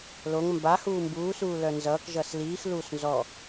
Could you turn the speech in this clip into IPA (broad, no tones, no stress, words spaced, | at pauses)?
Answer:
loŋ mba huːmbuːsuː lœnzʌːkʒʌːs liːxluːs nzɔ